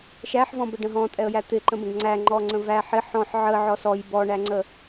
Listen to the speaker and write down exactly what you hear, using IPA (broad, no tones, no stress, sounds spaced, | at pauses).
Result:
ʃ æ ħ v ɔ̃ b ə ɖ ə̃ ɦ ɔ̃ tʼ ɛ ə̯ j æ t̪ ɪ ǃ ə̃ b ə̃ ɡ ŋ͡ǀ æ ŋ͡ǃ ɔ ŋ͡ǀ ə̃ v æ ħ ɪ ħ ɔ̃ ħ ʕ ə ʕ ɔ s ɔ j b ɔ ɳ æ ŋ͡ǀ ə